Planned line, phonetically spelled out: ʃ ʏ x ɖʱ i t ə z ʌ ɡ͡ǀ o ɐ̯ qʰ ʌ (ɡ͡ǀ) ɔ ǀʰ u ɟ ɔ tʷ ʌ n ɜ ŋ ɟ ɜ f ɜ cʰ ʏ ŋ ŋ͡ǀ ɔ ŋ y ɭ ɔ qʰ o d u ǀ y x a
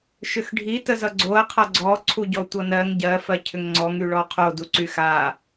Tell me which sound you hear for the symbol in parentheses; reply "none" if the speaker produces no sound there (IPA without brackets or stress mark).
ɡ͡ǀ